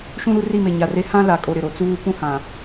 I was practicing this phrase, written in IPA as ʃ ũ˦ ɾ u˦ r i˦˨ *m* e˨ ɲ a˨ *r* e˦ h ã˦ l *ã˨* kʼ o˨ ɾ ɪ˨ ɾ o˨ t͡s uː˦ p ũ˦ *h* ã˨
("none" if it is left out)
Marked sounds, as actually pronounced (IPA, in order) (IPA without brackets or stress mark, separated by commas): m, r, a˨, h